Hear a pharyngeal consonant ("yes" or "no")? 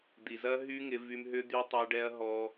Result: no